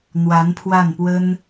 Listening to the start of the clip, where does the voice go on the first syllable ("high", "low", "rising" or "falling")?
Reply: rising